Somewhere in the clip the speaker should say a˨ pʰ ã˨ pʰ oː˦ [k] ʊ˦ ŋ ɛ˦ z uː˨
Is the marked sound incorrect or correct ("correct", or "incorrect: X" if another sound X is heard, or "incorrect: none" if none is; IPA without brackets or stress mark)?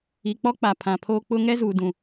incorrect: k͡p